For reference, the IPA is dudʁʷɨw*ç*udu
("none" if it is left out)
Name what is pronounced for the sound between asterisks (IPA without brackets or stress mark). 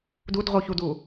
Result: ç